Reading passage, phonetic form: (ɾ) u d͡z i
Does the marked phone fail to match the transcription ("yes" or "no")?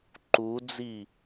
yes